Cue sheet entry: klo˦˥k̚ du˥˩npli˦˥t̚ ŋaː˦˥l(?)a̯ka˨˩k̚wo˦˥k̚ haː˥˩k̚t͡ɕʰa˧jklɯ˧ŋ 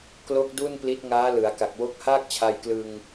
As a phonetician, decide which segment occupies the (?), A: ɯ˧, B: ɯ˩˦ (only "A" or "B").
B